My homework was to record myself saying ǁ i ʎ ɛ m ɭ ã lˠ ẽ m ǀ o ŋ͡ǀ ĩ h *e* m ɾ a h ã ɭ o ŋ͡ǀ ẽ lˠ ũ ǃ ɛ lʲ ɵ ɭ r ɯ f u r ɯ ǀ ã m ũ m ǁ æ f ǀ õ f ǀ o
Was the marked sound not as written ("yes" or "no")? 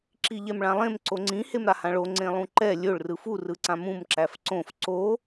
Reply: no